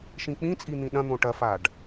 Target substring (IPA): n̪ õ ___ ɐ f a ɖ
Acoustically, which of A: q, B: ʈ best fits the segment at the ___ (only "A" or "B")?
B